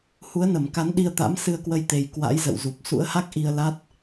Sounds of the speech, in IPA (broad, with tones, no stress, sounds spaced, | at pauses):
h u˨˦ ə̯ n ə˧˩ m k a˨˦ n ɗ i˧ ə̯ t̪ a̰˧˥ m s ɨ˧ ə̯ k w ə˧ j t̪ e˨˩ j k w a̰˧˥ j z ə̰˧˨ w z u˨˩ p̚ s ṵ˧˥ ə̯ h a˦˥ k̚ ʔ i˧ ə̯ l a˦˥ t̚